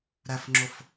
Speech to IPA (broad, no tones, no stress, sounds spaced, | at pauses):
ɾ æ f ŋ͡ǁ o f